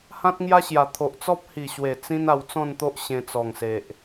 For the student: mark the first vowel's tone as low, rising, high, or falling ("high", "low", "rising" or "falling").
high